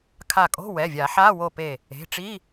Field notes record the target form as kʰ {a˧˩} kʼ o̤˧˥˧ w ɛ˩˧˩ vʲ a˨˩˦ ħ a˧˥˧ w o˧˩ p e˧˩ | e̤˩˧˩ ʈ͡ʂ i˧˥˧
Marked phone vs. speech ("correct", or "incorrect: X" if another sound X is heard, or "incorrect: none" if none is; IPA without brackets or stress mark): correct